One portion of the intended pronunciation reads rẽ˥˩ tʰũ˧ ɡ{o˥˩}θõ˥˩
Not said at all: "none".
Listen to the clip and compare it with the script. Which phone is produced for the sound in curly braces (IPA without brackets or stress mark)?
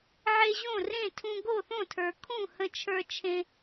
o˥˩